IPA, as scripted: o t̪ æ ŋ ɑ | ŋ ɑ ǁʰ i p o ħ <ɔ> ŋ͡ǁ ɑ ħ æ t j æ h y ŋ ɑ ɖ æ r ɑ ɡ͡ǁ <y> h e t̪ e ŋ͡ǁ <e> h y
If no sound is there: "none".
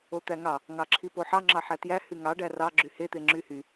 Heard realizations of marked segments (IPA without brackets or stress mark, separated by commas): ɑ, y, y